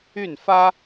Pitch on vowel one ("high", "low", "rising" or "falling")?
falling